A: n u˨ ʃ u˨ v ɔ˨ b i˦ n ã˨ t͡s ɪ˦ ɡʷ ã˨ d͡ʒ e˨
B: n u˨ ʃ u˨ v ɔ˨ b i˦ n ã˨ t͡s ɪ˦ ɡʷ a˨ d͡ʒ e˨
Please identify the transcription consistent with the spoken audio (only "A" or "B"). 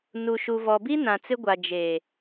B